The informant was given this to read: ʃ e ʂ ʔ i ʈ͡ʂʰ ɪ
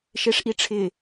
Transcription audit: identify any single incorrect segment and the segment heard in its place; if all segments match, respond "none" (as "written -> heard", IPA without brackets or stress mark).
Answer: none